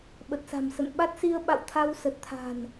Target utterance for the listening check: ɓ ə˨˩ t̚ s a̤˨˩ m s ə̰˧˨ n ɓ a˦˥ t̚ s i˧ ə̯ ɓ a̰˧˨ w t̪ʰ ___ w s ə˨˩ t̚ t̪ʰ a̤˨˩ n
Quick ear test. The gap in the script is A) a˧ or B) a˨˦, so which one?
A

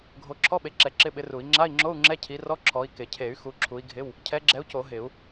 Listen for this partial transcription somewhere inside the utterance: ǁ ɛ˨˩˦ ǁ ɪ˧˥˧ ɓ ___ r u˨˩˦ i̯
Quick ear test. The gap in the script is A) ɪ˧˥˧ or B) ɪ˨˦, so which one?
B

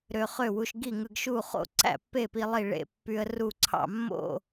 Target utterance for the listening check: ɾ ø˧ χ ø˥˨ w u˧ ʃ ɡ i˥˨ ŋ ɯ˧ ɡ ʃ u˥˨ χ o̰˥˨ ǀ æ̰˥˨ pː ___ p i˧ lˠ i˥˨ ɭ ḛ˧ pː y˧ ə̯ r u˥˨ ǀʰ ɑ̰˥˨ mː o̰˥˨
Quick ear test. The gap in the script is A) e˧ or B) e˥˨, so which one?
B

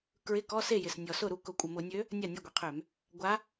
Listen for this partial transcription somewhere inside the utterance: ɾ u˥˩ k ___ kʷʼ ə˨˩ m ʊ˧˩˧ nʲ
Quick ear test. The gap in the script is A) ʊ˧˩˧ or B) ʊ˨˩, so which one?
A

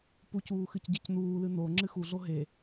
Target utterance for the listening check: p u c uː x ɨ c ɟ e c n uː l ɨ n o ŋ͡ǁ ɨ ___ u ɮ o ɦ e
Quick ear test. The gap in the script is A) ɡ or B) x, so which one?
B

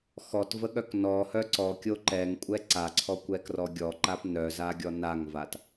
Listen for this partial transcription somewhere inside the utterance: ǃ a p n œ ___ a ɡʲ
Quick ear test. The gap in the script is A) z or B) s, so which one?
A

